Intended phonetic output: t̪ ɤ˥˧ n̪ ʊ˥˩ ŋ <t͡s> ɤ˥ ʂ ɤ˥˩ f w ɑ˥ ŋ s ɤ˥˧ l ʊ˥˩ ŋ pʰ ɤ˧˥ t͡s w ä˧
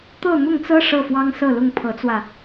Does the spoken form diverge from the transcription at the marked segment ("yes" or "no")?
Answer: no